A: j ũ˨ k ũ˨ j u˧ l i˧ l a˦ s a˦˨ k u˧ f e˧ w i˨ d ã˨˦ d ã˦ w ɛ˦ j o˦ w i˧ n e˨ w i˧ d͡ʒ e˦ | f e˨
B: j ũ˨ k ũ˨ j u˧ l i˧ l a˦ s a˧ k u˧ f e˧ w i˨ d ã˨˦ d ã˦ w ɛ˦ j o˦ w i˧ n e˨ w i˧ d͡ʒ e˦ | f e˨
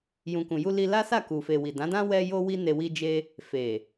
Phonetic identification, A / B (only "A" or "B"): A